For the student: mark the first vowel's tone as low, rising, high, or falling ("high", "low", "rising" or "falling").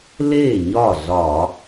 falling